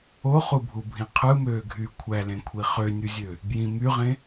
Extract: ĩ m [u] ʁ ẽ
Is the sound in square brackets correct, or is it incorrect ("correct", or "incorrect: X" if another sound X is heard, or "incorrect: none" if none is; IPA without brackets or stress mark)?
incorrect: y